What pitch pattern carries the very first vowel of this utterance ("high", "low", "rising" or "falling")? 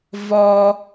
high